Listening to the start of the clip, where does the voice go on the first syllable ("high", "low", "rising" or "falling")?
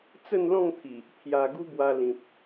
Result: falling